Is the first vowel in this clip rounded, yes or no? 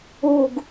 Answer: yes